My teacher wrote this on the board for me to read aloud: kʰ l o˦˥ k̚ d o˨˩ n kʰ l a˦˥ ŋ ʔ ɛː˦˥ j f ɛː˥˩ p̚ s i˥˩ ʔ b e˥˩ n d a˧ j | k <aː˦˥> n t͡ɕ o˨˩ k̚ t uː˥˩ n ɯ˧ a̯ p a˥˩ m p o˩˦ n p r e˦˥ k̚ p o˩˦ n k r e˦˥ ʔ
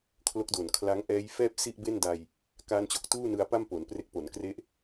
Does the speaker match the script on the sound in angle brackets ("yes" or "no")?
no